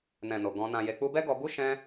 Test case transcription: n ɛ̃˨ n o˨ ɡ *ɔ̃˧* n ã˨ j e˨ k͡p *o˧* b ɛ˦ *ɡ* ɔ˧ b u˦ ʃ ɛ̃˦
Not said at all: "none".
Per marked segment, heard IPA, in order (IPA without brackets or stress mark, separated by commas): ɔ̃˧, u˧, ɡ